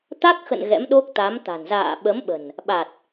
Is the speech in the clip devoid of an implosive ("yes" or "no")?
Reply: no